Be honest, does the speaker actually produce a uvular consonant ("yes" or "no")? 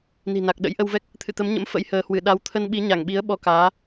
no